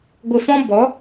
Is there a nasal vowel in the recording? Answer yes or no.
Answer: yes